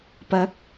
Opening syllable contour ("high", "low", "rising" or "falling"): rising